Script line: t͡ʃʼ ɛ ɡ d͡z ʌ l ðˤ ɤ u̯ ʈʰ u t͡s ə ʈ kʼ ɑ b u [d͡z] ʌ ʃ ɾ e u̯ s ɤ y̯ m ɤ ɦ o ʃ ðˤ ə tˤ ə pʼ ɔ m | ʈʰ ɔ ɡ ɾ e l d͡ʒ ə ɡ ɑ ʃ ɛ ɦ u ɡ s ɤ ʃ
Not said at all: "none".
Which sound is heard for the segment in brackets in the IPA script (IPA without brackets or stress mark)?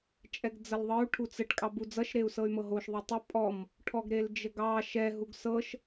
d͡z